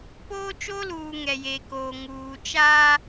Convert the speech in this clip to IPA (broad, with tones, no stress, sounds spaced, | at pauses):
p oː˦ t͡ʃ o˦ l uː˨ ŋ ɛ˨ j e˨ k oː˨ ŋ uː˨ t͡ʃ aː˦